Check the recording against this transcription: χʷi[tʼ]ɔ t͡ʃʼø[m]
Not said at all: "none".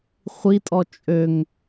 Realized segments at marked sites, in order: tʼ, ŋ

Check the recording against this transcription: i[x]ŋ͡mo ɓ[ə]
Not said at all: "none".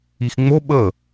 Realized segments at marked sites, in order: x, ə

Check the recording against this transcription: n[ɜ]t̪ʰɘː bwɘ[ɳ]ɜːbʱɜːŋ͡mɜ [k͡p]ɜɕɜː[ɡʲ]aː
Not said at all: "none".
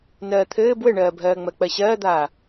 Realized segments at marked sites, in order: ɜː, ɳ, k͡p, d̪

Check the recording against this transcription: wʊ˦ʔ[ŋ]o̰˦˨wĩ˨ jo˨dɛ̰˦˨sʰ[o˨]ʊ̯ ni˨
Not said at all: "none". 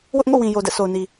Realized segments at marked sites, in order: ŋ, o˨

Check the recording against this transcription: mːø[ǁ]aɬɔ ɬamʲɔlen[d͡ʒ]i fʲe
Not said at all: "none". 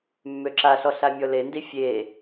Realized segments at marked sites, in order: ǁ, d

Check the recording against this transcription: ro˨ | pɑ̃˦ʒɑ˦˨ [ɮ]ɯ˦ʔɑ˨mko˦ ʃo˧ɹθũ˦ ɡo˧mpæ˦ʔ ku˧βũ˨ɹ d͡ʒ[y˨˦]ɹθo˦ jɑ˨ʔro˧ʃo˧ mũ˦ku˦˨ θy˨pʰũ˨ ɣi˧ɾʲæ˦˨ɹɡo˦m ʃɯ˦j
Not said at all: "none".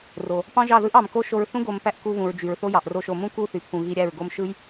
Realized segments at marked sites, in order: ð, y˨

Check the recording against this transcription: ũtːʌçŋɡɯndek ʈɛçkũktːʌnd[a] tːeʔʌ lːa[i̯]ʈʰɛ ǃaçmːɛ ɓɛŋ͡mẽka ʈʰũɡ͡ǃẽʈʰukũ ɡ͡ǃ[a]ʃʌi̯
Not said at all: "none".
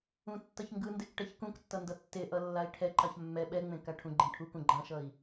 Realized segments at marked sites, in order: ʌ, i̯, ã

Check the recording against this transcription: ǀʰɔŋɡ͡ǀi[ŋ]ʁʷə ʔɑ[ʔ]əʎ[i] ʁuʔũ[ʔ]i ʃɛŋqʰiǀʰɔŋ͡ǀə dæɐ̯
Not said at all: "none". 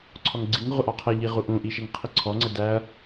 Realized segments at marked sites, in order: ŋ, qʰ, i, ʔ

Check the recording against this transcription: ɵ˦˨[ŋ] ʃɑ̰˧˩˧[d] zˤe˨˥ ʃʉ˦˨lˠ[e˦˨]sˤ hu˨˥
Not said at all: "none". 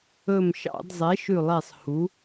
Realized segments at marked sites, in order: m, d, e˦˨

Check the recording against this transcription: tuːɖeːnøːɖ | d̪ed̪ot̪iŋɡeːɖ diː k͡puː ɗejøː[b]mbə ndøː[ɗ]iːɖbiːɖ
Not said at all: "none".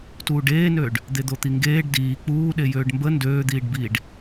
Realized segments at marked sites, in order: ɖ, d̪

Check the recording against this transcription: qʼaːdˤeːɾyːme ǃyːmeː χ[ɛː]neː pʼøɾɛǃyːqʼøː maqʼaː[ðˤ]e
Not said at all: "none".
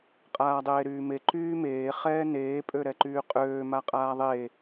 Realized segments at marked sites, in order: ɛː, ðˤ

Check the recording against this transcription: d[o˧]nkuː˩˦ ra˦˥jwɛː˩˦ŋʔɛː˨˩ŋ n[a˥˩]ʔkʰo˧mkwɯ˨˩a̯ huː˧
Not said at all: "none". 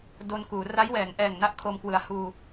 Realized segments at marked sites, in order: o˧, a˥˩

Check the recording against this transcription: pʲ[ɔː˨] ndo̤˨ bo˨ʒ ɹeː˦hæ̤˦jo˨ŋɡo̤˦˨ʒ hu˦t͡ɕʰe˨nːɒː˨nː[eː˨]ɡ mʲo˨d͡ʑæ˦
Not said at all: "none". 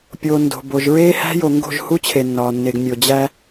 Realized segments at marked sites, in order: oː˨, e˨

